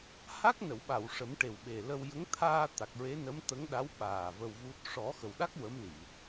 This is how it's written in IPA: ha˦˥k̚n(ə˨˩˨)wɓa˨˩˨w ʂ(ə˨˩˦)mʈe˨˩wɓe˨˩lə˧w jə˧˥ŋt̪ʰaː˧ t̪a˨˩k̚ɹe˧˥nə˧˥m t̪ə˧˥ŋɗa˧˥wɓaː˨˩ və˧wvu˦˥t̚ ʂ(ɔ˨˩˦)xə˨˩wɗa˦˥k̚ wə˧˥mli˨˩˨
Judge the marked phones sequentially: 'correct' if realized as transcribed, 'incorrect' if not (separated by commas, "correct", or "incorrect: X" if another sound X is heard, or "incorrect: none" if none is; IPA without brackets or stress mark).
correct, correct, correct